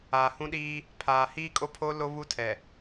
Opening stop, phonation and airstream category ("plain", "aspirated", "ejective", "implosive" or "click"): implosive